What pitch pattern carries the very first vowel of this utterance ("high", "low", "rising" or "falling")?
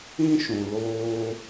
high